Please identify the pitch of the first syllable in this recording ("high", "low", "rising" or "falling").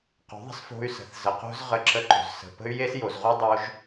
rising